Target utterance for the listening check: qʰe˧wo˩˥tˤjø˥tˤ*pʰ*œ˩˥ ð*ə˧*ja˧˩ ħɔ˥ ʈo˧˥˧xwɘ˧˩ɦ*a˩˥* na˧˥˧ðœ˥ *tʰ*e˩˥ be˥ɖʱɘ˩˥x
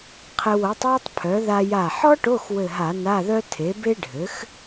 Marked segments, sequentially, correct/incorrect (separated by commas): correct, incorrect, incorrect, correct